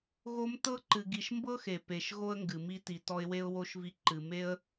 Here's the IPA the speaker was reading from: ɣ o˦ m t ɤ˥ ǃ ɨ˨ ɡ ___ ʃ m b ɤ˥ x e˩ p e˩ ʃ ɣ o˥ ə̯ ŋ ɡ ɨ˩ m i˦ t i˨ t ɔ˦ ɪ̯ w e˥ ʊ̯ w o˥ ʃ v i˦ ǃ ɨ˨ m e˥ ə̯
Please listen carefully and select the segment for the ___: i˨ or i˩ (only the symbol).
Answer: i˨